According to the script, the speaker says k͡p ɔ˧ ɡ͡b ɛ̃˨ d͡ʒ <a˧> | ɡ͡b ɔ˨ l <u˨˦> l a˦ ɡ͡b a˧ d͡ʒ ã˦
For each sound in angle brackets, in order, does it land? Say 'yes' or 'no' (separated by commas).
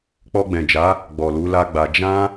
no, yes